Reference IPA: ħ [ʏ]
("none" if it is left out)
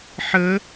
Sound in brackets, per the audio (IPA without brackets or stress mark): ə